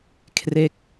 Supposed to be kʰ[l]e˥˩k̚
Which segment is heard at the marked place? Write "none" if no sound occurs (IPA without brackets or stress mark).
r